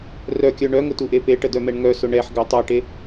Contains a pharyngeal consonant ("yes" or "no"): yes